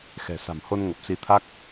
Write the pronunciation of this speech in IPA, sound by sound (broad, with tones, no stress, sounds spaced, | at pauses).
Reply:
x ɛ̤˨˩ s a̤˨˩ m h o˧ n ŋ ə˨˩ p̚ s i˨˦ t̪ʰ a˦˥ k̚